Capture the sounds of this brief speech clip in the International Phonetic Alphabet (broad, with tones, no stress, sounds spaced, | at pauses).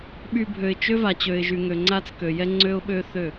ɓ y˨ bʱ ø˨ ɪ̯ t͡ʃ ø˦ v a˨ t͡ɕ ø˨ ɪ̯ ʒ y˨ ŋ ø˨ ŋ͡ǀ a˦ t͡s k ø˨ j ɛ˦ ŋ͡ǀ ø˦ ʊ̯ ɓ ø˦ θ ø˦˨